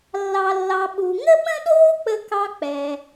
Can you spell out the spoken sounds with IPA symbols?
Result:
lː ɑ˧ lː ɑ˧ ɓ u˨ ŋ ə˦ ɓ ə̃˦ ɗ oː˦ k͡p ə˦ k ɑ˦ k͡p ɛ˧

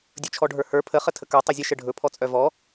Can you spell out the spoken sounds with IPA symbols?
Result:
dʲ ɵ t͡ʃʰ ɔ ɖʱ ə˞ h ə˞ pʰ ə χ ə tʰ ə k ə˞ tˤ ɵ zʲ ə ʃ ə ɖʱ ɵ pʰ ɔ t͡sʼ œ v ɔ

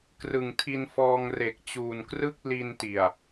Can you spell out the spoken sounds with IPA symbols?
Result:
k r ɯ˨˩ ŋ tʰ i˧ n f ɔː˧ ŋ r e˨˩ k̚ t͡ɕ uː˨˩ n k r ɯ˥˩ k̚ l i˧ n t i˨˩ a̯

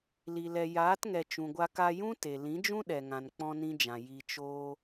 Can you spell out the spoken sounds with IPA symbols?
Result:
l i˨ l ɛ˨ j aː˨˦ t ŋ ɛ˨ t͡ʃ ũ˨ ɡʷ a˧ k a˧ j ũ˦ t e˨ l ĩ˨˦ d͡ʒ ũ˦ ɗ ɛ˨ ŋ ã˨ n k͡p ɔ̃˧ n ĩ˧ d͡ʒ ã˨ j i˨ t͡ʃ oː˧

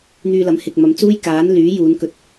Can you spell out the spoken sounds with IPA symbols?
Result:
n̪ yː˧ l ɐ˨˥ m h ɪ˨ k̚ m ɐ˨˧ m t͡s uː˥ j k aː˨˥ n l yː˨˥ j uː˨˧ n k ɵ˧ t̚

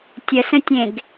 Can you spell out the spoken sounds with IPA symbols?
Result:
tʲ ə s ə̃ tʲ ẽ ɡ

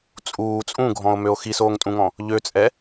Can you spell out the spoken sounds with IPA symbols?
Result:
t͡sʼ uː t͡sʼ ũ ɡʱ ɔ̃ o̯ m ø o̯ x i s oː ŋ tʼ ũ ŋ ɔ̃ | ʎ ø t͡sʼ ɛ

